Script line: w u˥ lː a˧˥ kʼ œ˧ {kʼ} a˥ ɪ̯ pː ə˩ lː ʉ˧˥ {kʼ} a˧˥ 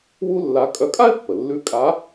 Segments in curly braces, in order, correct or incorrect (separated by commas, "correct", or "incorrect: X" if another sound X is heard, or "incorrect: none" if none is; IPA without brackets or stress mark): correct, correct